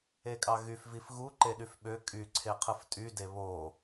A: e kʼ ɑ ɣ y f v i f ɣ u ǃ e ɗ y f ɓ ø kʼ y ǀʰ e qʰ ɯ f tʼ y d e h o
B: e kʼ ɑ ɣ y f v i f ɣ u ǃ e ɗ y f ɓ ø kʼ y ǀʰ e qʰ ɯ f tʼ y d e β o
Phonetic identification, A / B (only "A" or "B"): B